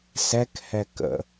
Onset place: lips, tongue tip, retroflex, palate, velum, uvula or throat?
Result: tongue tip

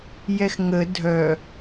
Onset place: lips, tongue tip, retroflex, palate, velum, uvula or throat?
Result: palate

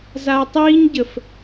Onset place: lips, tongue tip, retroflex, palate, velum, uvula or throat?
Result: tongue tip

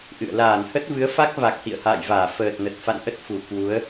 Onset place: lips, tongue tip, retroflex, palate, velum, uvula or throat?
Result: throat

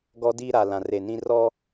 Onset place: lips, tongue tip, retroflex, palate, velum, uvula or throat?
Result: velum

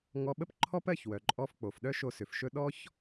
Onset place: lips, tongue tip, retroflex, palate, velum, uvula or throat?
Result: velum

